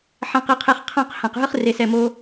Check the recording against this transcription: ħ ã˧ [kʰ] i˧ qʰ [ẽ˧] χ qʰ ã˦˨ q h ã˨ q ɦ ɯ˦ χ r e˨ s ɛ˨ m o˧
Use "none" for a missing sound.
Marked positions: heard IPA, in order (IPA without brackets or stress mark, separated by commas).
q, e˧